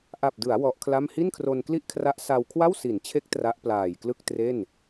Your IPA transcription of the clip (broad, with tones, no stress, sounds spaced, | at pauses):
ʔ a˨˩ p̚ d ɯ˩˦ a̯ w ɔ˦˥ ʔ kʰ l a˥˩ m h i˥˩ n kʰ r o˧ n k l i˥˩ ʔ kʰ r a˦˥ ʔ s a˧ w kʰ w a˥˩ w s i˩˦ n t͡ɕʰ e˦˥ k̚ t r a˦˥ ʔ p l aː˨˩ j k l ɯ˥˩ k̚ t r e˥˩ n